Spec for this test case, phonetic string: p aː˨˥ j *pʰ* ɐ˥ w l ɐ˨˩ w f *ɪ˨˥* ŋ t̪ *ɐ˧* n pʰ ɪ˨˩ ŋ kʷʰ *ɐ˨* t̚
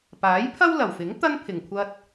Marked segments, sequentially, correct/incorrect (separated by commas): correct, correct, incorrect, incorrect